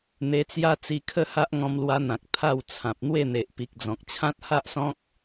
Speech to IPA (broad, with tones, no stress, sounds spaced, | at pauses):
n̪ e˧ t͡s j a˦ t͡s i˧ kʰ ə˥˧ h a˦ ʔ ŋ ɔ̃˧ m l w a˧ n̪ ã˨ k̚ t̪ʰ a˥˧ w t͡sʰ ã˨ p̚ n̪ w e˥˧ n̪ e˨ ʔ p i˨ k̚ d͡z ɔ̃˨ k̚ t͡ɕʰ ã˦ t̚ h a˦ ʔ s ɔ̃˦ k̚